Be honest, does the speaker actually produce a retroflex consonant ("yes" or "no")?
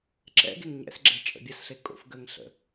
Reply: no